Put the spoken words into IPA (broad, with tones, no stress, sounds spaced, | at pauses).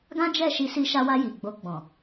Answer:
ɡ ã˦ d͡ʒ ɛ˦˨ ʃ i˧ s i˧ ʃ a˧ w a˧ j i˨ ɡ͡b o˧ ɡ͡b ɔ̃˨